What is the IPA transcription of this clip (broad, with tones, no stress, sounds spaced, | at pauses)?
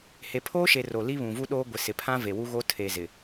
h e˨ pʰ oː˦ ʃ e˨ r o˨ l i˦ β ũ˨ v u˦ ɗ oː˦ ɡʷ ɪ˨ s ɪ˨ pʰ ã˦ v e˨ w u˦ ɣ o˦ tʰ e˨ z ɪ˨